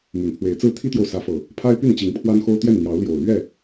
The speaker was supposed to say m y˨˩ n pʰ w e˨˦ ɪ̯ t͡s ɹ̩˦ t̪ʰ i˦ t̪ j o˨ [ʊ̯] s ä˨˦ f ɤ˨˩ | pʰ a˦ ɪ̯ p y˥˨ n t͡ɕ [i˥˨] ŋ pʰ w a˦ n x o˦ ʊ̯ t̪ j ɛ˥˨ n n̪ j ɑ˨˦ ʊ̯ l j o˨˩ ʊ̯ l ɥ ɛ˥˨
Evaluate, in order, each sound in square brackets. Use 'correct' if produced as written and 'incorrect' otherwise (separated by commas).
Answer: correct, incorrect